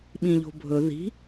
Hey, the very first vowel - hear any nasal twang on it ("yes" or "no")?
yes